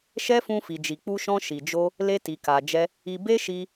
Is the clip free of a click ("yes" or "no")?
yes